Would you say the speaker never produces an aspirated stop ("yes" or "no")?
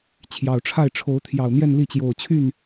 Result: no